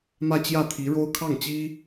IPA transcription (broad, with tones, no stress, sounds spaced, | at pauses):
m ä˥˧ t͡ɕ j ä˥˩ t̪ʰ i˧˥ ɻ o˥ ʊ̯ kʰ ɑ˥˩ ŋ t͡ɕ i˥